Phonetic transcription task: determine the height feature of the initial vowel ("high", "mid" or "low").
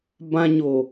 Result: low